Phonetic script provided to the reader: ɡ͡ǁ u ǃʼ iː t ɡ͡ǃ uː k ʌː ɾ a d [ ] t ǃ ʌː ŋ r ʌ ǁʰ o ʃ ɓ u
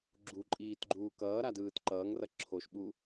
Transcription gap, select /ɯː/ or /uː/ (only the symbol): ɯː